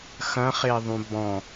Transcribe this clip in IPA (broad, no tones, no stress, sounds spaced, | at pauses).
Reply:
x ɐ̃ χ e ðˤ ũ b ɔ̃